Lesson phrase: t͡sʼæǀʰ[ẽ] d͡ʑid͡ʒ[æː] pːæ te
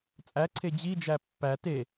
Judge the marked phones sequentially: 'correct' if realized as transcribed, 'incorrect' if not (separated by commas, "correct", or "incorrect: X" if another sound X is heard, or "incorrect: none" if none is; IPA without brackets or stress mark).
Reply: incorrect: e, incorrect: æ